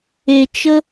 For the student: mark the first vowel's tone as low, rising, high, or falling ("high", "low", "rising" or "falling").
low